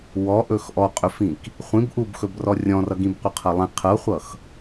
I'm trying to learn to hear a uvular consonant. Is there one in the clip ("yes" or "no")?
yes